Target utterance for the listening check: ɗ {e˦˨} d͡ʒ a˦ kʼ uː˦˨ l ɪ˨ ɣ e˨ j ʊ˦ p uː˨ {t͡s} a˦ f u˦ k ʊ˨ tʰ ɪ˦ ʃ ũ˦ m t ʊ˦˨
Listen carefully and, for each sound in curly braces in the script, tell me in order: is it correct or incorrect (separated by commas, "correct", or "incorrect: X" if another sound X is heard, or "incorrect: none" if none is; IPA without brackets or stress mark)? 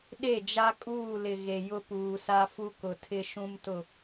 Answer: correct, incorrect: s